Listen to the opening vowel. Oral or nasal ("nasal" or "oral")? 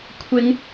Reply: oral